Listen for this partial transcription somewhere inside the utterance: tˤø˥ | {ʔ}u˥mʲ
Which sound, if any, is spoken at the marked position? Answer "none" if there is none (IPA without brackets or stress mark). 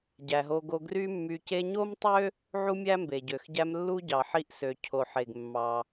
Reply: ʕ